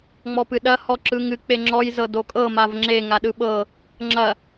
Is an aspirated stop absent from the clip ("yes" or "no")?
yes